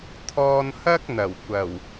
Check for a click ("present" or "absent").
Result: absent